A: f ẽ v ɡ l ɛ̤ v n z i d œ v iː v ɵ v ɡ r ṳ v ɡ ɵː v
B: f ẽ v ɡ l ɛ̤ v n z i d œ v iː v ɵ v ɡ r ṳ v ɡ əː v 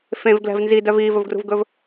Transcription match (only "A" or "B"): A